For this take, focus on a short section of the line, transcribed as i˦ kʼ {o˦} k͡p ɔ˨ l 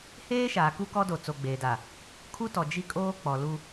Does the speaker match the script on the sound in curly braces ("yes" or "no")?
no